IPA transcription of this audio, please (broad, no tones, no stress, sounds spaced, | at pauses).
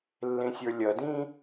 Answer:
lː ẽ sʲ ə˞ lʲ ɐ d ĩ